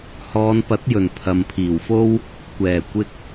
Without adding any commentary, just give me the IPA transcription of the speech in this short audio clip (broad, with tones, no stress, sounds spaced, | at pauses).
h ɔː˨˧ n p ɐ˨˥ t̚ j ɵ˨˩ n pʰ ɐ˨ m pʰ iː˨˩ w f o˥ w | kʷ ɛː˨˩ kʷ ɪ˧ k̚